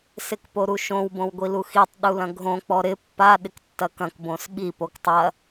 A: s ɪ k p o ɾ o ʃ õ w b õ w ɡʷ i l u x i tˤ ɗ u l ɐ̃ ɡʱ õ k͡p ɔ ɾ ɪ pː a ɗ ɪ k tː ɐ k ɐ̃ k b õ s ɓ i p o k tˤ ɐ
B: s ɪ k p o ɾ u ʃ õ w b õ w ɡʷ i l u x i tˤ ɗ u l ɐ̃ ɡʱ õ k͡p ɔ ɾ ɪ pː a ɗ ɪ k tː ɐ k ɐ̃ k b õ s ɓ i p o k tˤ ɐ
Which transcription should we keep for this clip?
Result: B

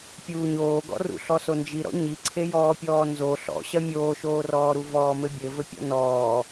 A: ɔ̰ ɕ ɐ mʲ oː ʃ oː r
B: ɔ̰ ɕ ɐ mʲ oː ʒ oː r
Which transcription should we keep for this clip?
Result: A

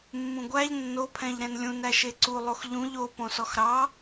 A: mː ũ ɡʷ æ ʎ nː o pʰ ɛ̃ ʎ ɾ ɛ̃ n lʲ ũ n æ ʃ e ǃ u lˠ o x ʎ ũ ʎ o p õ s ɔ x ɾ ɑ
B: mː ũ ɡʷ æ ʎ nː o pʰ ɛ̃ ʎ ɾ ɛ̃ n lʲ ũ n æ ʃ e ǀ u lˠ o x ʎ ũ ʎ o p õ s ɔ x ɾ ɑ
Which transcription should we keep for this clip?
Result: B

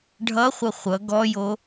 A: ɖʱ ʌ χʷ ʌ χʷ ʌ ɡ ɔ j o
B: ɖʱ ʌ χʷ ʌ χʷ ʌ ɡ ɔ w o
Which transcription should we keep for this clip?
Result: A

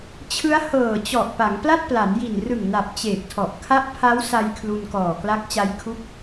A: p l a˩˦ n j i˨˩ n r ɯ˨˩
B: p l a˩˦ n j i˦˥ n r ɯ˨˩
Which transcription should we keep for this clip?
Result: A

